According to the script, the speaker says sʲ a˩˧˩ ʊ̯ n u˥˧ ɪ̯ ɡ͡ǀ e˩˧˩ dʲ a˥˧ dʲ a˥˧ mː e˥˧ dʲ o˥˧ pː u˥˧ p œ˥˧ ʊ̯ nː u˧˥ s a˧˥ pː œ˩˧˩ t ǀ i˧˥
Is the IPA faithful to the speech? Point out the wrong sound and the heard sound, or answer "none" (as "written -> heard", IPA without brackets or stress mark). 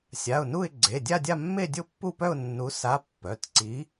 none